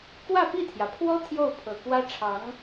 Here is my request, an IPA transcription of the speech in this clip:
k w ä˥˧ p i˥˩ t̪ʰ j ä˩ pʰ w ɔ˥ t̪ʰ j o˥˩ ʊ̯ pʰ ɤ˨˩ k w ä˥ ʈ͡ʂʰ ɑ˧˥ ŋ

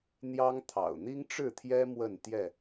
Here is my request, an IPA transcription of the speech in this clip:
n̪ j ɑ˦ ŋ t̪ʰ ɑ̰˨˩ ʊ̯ n̪ i˦ ŋ ʈ͡ʂ ɻ̩˥˨ t̪ʰ j ɛ˦ m w ə˥˨ n t̪ j ɛ˥˨

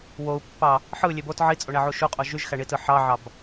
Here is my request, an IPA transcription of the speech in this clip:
w o u̯ pː ɑ | ħ ɯ lʲ e b o t ʕ i t͡sʼ o ɳ æ ʕ u ʃ u qʼ o ʒ y ʒ x æ ɳ i t ɯ ħ ɑ ʕ ɑ b

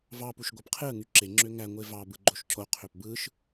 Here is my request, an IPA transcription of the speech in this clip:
v ɑ p u ʃ ɡʷ ɑ p qʰ e ə̯ ŋ y ǁ e ŋ͡ǁ ø ŋ æ ŋʷ e v ɑ b ɯ ɡ͡ǃ o ʃ cʰ o qʰ ø p b ɯ ʃ

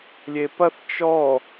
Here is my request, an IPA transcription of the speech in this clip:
lʲ e p ɐ θ t͡ʃ ɔ

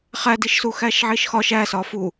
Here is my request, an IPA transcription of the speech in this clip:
χ æ d i ʃ s u x æ ʃ ʕ i ʃ x ɒ ʃ æ s ɒ f u

